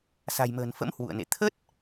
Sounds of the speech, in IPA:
s a̤˨˩ j m ə̤ː˨˩ n f ə̰˧˥ m h w ṵ˧˨ ə̯ n ḛ˧˨ t̪ʰ ə˦˥ t̚

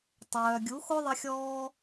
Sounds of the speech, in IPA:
tˤ œː˨ ɡʲ u˨˦ x o˦ ðˤ ə˦ xʲ ɔː˦

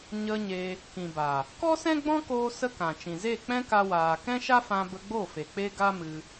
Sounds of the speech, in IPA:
ɲ ə˧ ɲ e˧ | k ĩ˨ b a˨ | k ɔ˦ s ɛ̃˦ ɡ͡b ɔ̃˦ k oː˧ s ə˦ k ã˨ t͡ʃ ĩ˨ z e˦˨ k͡p ɛ̃˦ k a˧ w aː˨ k ɛ̃˦ ʃ a˦ f ã˧ b ə˧ ɡ͡b o˦˨ f e˨ k͡p e˦ ɡ a˦ m ɨ˧

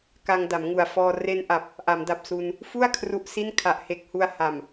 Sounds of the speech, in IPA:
k a˧ ŋ d a˩˦ m ŋ u˨˩ a̯ f ɔː˧ r e˧ n ʔ a˨˩ p̚ | ʔ a˩˦ m d a˨˩ p̚ s u˧ n | f u˥˩ a̯ kʰ r u˦˥ ʔ s i˥˩ n kʰ a˨˩ ʔ h e˨˩ k̚ h u˧ a̯ h a˨˩ m

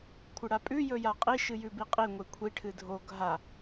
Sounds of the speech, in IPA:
kʷʰ ɨ ɽ a pʼ ʉ j ɵ j a qʼ i ʃ ɨ j ʉ b i qʼ i ŋʷ e kʷʰ i ʈʰ ɨ dʱ o ɡʱ a

